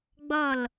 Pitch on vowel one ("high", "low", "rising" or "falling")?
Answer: falling